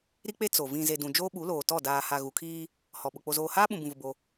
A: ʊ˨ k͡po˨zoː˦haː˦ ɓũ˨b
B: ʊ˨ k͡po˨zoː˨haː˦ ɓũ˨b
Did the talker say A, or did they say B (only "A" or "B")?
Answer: B